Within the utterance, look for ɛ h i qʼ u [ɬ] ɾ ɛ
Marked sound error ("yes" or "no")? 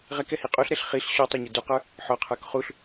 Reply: no